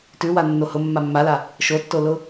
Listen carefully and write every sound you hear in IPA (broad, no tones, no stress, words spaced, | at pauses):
tʉwa nːohʊ mːamːala | ʃotːolʊ